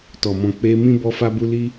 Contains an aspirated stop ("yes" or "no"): no